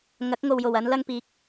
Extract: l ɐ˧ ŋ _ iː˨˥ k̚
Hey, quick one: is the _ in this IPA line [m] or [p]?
p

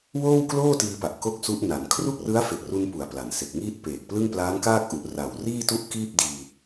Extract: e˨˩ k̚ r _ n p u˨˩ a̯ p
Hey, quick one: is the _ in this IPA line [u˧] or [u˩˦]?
u˧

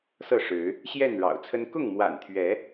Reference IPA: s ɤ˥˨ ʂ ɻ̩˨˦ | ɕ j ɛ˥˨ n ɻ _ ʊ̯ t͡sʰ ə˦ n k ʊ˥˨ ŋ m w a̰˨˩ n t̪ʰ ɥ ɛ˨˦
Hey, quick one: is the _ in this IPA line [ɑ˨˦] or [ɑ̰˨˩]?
ɑ̰˨˩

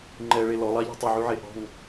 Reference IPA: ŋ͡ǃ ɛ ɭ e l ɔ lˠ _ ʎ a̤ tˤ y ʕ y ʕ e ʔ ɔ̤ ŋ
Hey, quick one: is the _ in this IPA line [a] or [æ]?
a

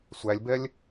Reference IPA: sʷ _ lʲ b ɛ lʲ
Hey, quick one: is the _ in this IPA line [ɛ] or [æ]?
æ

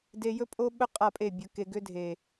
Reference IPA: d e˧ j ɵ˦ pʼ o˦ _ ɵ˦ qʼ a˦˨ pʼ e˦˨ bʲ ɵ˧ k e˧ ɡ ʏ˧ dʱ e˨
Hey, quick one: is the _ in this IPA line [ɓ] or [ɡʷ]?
ɓ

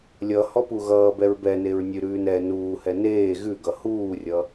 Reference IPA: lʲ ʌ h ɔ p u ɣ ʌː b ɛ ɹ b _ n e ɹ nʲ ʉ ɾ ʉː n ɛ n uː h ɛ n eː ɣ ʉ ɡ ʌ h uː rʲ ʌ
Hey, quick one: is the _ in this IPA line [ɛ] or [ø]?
ɛ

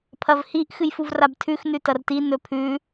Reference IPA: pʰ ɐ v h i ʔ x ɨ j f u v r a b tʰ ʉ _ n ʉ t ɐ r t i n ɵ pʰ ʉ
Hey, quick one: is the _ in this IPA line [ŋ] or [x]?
x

